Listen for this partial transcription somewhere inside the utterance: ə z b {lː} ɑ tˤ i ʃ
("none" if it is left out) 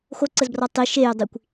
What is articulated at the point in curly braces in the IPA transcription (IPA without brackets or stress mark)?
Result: r